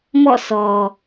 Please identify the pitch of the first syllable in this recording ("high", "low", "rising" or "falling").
falling